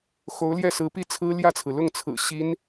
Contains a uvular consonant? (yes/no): no